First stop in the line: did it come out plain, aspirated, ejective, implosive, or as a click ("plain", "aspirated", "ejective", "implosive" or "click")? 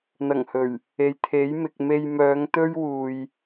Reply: aspirated